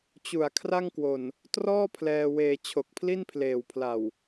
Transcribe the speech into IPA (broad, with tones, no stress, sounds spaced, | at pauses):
t͡ɕ u˨˩ a̯ kʰ r a˥˩ ŋ k w o˨˩ n | t r ɔː˥˩ pʰ l ɛː˧ w eː˧ t͡ɕʰ o˨˩ k̚ pʰ l i˥˩ n pʰ l eː˨˩ w pʰ l a˨˩ w